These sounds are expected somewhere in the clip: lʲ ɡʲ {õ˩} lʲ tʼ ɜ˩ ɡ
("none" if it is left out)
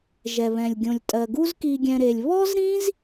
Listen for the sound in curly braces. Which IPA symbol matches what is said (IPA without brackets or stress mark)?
õ˩